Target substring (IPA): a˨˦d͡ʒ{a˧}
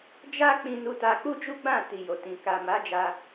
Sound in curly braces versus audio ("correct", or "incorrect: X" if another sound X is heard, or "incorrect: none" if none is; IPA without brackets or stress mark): correct